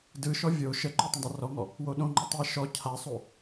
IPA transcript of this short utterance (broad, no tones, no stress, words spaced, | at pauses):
dɯʃɔ vʲo ʃəǃʏ tˤə̃dˤɛrɔŋɔ | woɗõŋ͡ǃu tˤɛ ʃɔ cʰasˤo